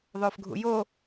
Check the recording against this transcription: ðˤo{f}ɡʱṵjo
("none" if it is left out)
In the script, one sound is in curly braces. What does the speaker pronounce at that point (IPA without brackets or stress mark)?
f